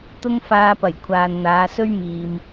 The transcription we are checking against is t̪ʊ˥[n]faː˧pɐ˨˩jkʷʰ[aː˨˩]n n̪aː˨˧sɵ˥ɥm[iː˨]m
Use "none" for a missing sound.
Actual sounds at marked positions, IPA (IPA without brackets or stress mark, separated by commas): ŋ, aː˨, iː˨